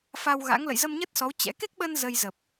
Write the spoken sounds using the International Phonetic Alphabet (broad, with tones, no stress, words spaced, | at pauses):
fa˧wɣa̰˧˥ŋ lə̰˧˨jzə˧mɲə˦˥t̚sɔ˨˦w t͡ɕɛ̰˧˥ ke˦˥k̚ɓə˧n zə˧jzə˨˩p̚